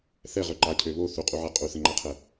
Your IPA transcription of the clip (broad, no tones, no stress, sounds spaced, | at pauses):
θ ɛ ʁ ø ǃ a cʰ ø β o θ u qʼ u ʕ ɛ qʼ u θ ə ŋ͡ǃ a qʰ ɛ